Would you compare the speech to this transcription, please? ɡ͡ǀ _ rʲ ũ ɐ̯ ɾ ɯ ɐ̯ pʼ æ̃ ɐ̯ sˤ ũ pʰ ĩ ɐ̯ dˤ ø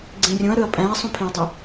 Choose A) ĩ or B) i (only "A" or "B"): A